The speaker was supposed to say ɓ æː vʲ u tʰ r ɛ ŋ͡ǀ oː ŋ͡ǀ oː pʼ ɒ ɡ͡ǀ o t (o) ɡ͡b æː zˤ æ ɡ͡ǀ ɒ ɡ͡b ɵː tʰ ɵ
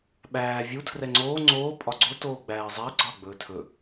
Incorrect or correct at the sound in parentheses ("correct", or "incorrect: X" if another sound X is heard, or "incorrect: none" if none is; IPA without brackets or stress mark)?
incorrect: oː